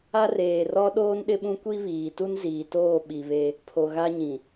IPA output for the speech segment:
a˦ r eː˨ r ɔ˦ ɗ oː˦ n ɗ ɪ˦ ɓ ũ˦ kʷ i˦ β iː˨ t u˦ n z iː˨ t oː˦˨ ɓ i˨ β e˦ | pʰ o˨ ɣ a˦ ɲ ĩ˨

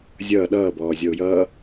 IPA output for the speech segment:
zʲ ʌː ɗ ʌː b ɔː zʲ ɔ ʊ̯ j ʌː

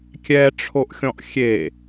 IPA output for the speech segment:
kʲ ɛ ʈ͡ʂʰ o ʔ xʲ ɔ̃ ʔ xʲ e

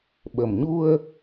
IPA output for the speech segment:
ɓ ə˨˩ m ɲ u˧ ə̯

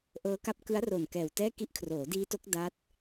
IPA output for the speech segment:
ʔ ɤː˦˥ k a˦˥ p̚ k ɯ˦˥ a̯ r o˨˩ n k ɛː˨˩ w t ɛː˥˩ k i˦˥ ʔ kʰ r oː˩˦ d iː˦˥ t o˦˥ k̚ d a˦˥ t̚

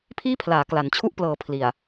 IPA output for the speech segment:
pʰ iː˥˩ pʰ l aː˩˦ k l a˩˦ n t͡ɕʰ u˥˩ ʔ p l ɤː˨˩ pʰ l i˨˩ a̯

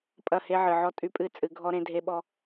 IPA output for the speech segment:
pʼ ɐ˦˨ h e˦ ʕ ɨ˨ ʕ ɔ˦ tʼ y˦ pʼ ɨ˦˨ t͡sʼ ɨ˨˦ ɡʱ ɔ˦ ɾ ẽ˦ dʱ e˦ ɓ ɔ˦

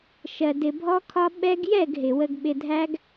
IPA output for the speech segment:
ʃ ɜ˧ d ɪ˧ bʱ ɔ˦ kʰ ɒ˦ ɓ ɛ˦ ɡ j ɛ˦˨ ɡ ɦ ɪ˨ w ə˧ ɡ ɓ ɪ˧ dʱ æ˦ ɡ

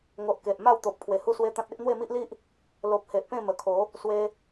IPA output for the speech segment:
ŋ o˨ ʔ k e˨ ʔ m a˥˧ w t̪ o˨ p̚ kʰ w e˨˩ h u˦ s w e˦ t̪ ã˦ t̚ e˦ ʔ n̪ w e˥˧ m i˦ ʔ l i˦ ʔ | l o˨ p̚ h e˨ ʔ p ẽ˥˧ m ə˨˩ kʰ o˨˦ | s w e˧

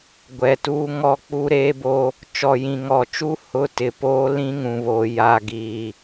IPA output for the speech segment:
ɡʷ ɛ˨ t uː˦ ŋ ɔ˦ k͡p u˦ ɾ eː˦ b o˦ | t͡ʃ ɔ˨ j ĩ˨ ŋ ɔ˨ t͡ʃ u˦ h ʊ˦ t ɪ˨ p oː˦ l ĩ˦ ŋ ũ˨ β o˨ j a˨ ɡ iː˨

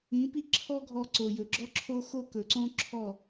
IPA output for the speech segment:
ĩ˨˦ p i˦ ǁʰ ɔ˦ ɡʱ ɔ˧ ǀ o˨ j ɵ˨ ɡ͡ǁ ɔ˦ ǁʰ o˦ x o˦ k ɵ˨ ǀ õ˦ ǁʰ ɔ˦˨

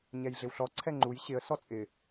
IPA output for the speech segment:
ɲ ɛ j ɮ ɪ w ɬ ɔ ǀʰ ɛ ŋ͡ǃ u j ɕ ɪ ə̯ s ɔ t͡sʼ ɪ

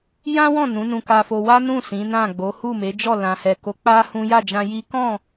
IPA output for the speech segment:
j ã˦ w ɔ̃˦˨ n ũ˨˦ n ũ˧ k a˧ f o˧ w a˦ n ũ˦˨ s ĩ˨˦ n ã˦˨ ɡ͡b o˨˦ h u˦˨ m e˨˦ d͡ʒ ɔ˦˨ l ã˨ h ɛ˨ k o˨˦ k͡p a˦ h ũ˦ j a˦˨ d͡ʒ ã˧ j i˦ k ɔ̃˦˨

